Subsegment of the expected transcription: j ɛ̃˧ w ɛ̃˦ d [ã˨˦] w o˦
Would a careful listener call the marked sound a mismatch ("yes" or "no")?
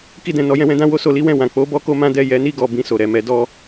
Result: yes